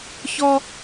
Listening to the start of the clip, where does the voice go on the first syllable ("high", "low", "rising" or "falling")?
high